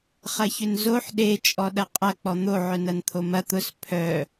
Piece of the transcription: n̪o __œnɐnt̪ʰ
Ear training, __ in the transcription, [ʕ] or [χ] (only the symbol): ʕ